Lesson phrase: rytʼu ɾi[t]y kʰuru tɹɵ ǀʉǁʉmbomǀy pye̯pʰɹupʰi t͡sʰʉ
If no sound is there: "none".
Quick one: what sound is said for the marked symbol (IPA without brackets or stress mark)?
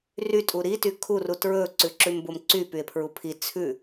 t